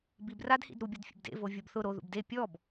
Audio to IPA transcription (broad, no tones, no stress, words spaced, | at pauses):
bibradhḭd ɾubʲʊd fʲḛbdḛvo vʲobθʊ ɾo ðṵbde pʲɔb